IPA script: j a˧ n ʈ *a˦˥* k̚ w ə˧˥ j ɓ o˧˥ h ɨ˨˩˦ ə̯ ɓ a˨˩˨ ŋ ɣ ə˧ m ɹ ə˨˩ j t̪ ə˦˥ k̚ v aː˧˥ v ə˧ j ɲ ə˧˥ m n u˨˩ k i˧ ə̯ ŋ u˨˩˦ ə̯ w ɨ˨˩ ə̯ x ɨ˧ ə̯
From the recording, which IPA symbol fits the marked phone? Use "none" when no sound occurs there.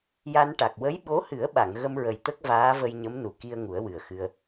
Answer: a˨˩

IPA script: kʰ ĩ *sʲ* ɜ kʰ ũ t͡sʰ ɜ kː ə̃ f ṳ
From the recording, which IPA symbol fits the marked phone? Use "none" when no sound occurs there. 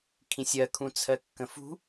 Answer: sʲ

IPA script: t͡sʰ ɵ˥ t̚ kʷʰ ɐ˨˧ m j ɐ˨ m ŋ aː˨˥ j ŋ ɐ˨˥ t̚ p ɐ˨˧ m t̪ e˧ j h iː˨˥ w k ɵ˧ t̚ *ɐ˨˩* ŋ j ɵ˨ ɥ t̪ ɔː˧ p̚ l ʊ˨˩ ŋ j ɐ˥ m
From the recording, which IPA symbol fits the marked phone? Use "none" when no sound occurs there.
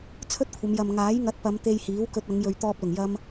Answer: ɐ˨˧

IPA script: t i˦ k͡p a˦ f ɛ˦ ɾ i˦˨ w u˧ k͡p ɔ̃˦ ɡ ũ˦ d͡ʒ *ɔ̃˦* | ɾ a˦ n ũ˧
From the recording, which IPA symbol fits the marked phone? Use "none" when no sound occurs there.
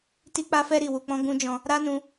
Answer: ɔ̃˧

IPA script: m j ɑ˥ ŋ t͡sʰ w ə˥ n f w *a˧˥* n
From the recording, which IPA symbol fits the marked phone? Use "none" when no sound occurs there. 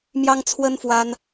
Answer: a˥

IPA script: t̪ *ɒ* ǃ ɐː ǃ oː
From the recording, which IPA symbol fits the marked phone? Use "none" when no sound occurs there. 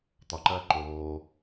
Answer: ɒ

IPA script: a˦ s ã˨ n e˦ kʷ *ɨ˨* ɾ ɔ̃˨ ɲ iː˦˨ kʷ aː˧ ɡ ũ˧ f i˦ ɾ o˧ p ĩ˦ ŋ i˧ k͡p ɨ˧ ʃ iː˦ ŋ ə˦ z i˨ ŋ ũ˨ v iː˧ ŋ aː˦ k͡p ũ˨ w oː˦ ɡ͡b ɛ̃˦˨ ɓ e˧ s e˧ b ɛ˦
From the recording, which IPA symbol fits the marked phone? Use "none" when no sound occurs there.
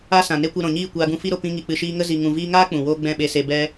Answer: ɨ˧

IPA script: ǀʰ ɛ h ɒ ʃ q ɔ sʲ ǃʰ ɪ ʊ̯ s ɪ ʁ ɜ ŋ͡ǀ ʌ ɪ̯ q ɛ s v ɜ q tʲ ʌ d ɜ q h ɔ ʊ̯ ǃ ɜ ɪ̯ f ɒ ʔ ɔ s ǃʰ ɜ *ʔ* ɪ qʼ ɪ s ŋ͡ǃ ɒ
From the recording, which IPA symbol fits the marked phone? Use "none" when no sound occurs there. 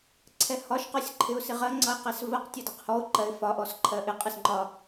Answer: ʔ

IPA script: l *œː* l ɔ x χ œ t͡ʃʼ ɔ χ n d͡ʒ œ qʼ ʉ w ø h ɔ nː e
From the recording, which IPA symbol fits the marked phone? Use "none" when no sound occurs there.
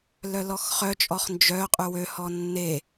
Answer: œ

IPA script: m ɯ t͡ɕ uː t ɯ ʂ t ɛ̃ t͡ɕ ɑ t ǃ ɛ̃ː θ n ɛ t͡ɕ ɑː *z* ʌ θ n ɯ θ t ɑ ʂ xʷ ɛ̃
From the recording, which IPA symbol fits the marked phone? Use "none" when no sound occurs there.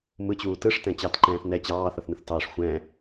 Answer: θ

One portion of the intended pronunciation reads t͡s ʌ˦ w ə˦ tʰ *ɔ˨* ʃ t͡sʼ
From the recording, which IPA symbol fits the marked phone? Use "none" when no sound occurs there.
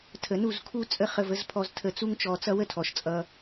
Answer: ɔ˨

